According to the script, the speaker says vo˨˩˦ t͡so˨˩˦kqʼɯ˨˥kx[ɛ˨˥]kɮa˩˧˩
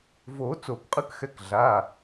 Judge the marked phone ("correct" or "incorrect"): correct